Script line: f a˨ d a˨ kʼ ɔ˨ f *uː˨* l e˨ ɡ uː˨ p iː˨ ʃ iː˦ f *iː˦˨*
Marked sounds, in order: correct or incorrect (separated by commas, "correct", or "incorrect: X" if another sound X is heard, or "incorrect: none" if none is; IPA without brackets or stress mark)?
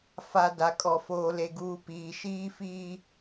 incorrect: oː˨, incorrect: iː˦